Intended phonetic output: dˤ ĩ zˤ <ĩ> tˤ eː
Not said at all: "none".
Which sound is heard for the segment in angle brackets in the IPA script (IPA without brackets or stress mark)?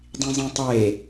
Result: ĩ